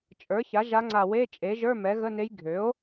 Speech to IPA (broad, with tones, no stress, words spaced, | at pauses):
t͡ʃʼə˞˩˥ça˩˥ ʒa˧˥ŋ͡ǀa˧˩ we˧˥˧t͡ʃʼe˩˥ʒə˞˧˥˧ mɛ˩˥ɣə˧˥˧ne˧˥j ɡʱø˩˥o̯